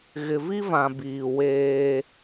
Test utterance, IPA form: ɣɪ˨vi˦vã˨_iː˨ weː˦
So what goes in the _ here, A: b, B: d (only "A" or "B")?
A